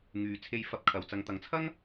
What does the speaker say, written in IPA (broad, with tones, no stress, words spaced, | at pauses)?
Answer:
ŋyː˨˧t͡sʰe˧j fɐ˧p̚kʰɐ˨w t͡sɐ˨ŋt̪ɐ˨ŋt͡sʰɐ˥ŋ